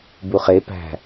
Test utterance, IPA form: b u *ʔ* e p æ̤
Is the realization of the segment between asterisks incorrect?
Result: yes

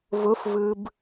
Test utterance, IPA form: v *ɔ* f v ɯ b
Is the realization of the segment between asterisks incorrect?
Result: yes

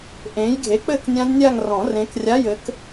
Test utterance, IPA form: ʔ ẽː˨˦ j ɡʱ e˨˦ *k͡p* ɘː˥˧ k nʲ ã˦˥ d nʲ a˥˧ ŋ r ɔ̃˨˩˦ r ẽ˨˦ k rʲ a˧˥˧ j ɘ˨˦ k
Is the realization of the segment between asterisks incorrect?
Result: no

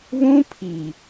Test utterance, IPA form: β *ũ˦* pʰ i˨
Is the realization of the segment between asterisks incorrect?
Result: no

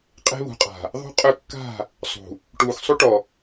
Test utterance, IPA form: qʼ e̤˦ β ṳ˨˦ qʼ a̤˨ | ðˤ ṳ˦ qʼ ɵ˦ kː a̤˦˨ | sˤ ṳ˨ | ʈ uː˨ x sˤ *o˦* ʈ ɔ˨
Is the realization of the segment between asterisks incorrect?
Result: yes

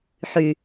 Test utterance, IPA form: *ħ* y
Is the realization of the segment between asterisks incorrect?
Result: no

